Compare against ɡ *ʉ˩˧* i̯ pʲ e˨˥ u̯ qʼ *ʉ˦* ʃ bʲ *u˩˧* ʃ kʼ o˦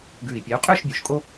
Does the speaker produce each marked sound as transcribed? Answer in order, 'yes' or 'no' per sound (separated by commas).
no, no, yes